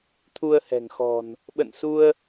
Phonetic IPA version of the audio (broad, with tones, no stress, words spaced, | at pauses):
t̪ʰu˧ə̯hɛ̤˨˩ŋxɔ̤˨˩n | ɓə̰˧˨nsu˧ə̯